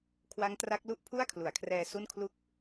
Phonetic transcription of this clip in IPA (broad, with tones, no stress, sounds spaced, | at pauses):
kʰ w a˦˥ ŋ t r a˦˥ k̚ l u˥˩ ʔ pʰ u˥˩ a̯ kʰ l u˩˦ a̯ kʰ r ɛː˧ s u˥˩ n kʰ l u˥˩ k̚